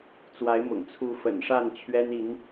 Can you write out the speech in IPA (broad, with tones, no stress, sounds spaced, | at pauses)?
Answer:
t͡s w a˨˦ ɪ̯ m ʊ̰˨˩ ŋ t͡sʰ u˨˦ f ə̰˨˩ n ʂ a˥˨ n t͡ɕʰ ɥ ɛ˦ n i˨˦ n